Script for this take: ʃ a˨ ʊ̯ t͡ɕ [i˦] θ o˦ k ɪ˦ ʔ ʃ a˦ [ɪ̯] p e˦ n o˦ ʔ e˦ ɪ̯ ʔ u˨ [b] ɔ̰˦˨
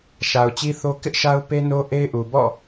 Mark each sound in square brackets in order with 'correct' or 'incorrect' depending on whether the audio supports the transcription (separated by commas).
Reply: correct, incorrect, correct